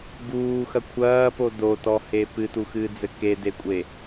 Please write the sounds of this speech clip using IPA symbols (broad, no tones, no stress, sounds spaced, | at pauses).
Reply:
b uː x ɐ kʷʰ ɐː p o d o t ɔ h e p ɨ t u x ɨː d͡z ɘ k e d e kʷʼ e